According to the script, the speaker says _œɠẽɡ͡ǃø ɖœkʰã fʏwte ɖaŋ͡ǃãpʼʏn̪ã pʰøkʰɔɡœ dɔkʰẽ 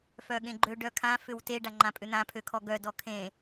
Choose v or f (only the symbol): f